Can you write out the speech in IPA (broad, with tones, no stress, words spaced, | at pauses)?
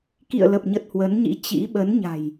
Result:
kḭ˧˨ə̯lə˨˩p̚ɲə˨˩t̚ hwə˨˦nɲḭ˧˥t͡ɕḭ˧˥ ɓə˨˦nɲa̤˨˩j